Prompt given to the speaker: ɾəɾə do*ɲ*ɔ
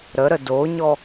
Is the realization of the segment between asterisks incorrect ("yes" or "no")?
no